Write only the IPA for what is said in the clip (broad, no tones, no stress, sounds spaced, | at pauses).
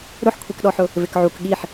ɾ ʊ ħ kʷʰ i k ɗ ɔ ħ ʊ | v ɪ k ʕ u k ɠ i ħ